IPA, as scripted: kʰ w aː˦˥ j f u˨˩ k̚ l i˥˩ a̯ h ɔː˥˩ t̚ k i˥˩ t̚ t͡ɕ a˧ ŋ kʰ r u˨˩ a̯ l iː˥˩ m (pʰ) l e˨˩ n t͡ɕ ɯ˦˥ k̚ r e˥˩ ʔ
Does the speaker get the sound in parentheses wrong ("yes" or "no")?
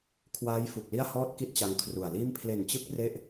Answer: no